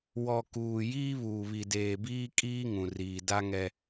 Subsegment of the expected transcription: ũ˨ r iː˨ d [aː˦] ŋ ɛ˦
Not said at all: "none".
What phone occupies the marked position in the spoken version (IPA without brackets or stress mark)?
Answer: a˦